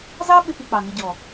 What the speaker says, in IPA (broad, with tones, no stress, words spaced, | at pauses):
zɑ˦ ɓɪ˦pi˧k͡pɑ˨ŋɪ˧ ɟɔ˨